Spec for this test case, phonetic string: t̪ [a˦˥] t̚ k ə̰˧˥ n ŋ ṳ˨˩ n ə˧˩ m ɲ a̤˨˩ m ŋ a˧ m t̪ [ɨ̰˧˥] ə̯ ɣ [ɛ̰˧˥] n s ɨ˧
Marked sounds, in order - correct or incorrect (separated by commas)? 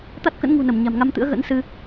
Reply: correct, correct, incorrect